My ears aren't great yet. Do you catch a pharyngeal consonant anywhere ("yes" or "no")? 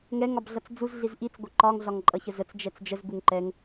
no